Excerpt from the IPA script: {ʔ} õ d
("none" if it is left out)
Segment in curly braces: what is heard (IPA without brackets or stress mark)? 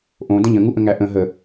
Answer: ʔ